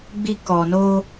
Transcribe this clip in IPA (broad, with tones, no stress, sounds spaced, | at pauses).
ɡ͡b i˦ k ɔ˧ n o˦